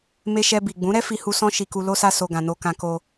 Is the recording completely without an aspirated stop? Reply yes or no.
yes